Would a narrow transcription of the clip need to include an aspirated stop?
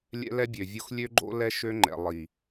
no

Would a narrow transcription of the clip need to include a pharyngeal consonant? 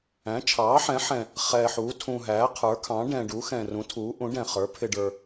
yes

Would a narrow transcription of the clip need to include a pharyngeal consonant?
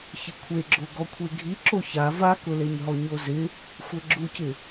no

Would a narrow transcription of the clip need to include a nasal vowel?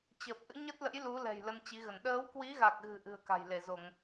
no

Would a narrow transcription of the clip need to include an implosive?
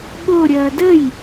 yes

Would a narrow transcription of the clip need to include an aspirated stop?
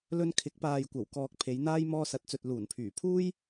yes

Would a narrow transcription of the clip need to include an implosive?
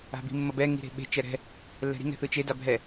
yes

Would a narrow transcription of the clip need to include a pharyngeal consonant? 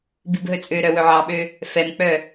yes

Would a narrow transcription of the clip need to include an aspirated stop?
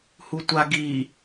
no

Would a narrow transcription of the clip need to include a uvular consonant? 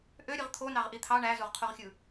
yes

